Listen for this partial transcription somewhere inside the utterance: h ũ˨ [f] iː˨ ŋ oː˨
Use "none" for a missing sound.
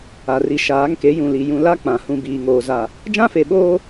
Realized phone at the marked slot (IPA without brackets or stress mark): b